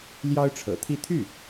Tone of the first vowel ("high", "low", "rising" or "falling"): high